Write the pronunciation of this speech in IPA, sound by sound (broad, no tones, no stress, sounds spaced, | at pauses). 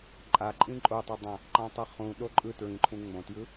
ǃʼ a ǃʼ ĩ ǃʼ o tˤ ʌ dˤ ã | ǃ ã tˤ ʌ χ ũ ɗ o ǃʼ ɯ t ɹ ĩ ǃʰ ũ ŋ͡m õ t j ɯ